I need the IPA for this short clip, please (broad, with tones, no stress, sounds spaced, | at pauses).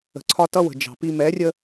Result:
ə̤˨ ǀʰ ɒ˦ t ʌ˦ w ə̤˨ d͡ʒ ɑ̤˨ p i˦ m ɛ˨˦ rʲ ə˦